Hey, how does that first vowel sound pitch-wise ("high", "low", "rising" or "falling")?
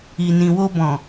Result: low